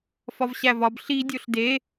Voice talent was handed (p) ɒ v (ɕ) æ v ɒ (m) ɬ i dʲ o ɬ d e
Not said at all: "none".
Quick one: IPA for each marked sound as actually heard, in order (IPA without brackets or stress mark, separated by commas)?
f, ɕ, b